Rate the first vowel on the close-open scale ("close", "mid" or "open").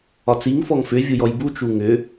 open